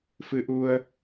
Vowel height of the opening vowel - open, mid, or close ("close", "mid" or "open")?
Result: close